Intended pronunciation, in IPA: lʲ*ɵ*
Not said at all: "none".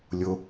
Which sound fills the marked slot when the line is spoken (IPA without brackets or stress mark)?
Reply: o